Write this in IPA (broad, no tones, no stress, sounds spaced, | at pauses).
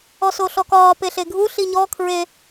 ɔ s o ɬ ɔ k ɒː p e ɬ e ɡʱ u ɬ i ɲ ɔ kʰ ɹ e